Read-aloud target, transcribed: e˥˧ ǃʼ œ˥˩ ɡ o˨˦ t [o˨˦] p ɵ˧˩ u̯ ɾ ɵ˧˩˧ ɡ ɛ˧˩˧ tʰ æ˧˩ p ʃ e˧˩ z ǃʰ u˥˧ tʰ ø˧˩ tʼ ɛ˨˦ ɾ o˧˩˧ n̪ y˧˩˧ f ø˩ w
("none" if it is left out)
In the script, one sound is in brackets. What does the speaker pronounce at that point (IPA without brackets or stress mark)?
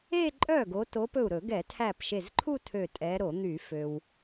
o˨˦